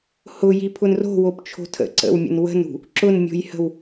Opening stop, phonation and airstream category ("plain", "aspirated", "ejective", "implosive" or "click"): aspirated